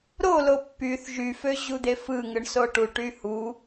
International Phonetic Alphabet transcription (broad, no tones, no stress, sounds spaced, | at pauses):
ɾ o l o pː y θ ʒ y f ø ʑ u d̪ e f ɯ ŋ ɯ ɳ s o ʈ u ʈ y h u